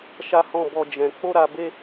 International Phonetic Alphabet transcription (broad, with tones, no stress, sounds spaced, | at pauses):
ʃ a˦ h ɔ̃˦˨ b ɔ˧ d͡ʒ ɛ̃˨ k͡p o˧ ɾ a˨ b e˧